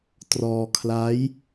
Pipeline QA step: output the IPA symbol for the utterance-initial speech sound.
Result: t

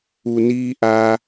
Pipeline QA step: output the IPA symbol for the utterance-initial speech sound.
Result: u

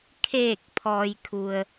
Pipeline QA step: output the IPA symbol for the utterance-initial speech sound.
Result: kʰ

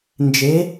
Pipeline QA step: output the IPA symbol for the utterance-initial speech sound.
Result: n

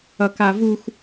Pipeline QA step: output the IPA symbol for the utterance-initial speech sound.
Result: ʌ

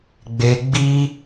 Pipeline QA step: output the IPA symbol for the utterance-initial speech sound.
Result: ɡ͡b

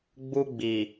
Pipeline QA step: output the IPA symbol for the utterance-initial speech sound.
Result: ɡ͡b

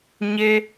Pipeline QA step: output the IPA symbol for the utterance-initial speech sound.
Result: ɲ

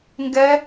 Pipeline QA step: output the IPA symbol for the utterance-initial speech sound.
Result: ŋ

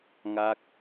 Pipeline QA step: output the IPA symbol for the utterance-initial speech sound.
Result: ŋ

